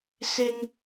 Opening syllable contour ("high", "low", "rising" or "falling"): high